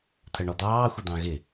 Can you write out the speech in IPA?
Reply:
t̪ʰɜɳɔd̪ɑː xʷɪd̪ɑ̃ɣɪ

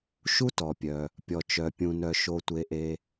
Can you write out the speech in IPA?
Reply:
ʃu˥tɔ˩pʲœ˩ | pʲɔ˩t͡ʃœ˩pʲũ˩nœ˩ ʃo˩tʷe˩ʔe˩

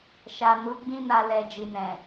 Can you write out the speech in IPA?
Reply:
ʃa˨ nu˨˦ɡ͡bĩ˦na˧ lɛ˨ d͡ʒi˨nɛ̃˨

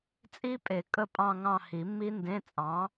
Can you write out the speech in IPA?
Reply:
t͡sʼi˦˥pʼe˨˩˦ kʼə˦˨pʼɑ̃˦˨ŋɑ̃˦˨ hi˨˩˦mːi˦˥ndẽ˧˥˧ t͡sʼɑ̃˨˥

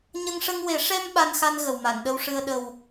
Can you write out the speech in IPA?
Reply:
ɲə˧ŋʂə˧ŋwe˨˩˦ ʂɛ˧m ɓa˧nxa˧n ɣə˨˩wma˨˩˨nɗə˧wʂɨ˧ə̯ ɗə˨˩w

